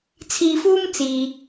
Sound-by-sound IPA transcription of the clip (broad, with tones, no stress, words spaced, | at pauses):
t͡sʰiː˧fuː˥m t͡siː˨